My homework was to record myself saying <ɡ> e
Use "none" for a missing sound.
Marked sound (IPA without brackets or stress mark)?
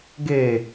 ɡ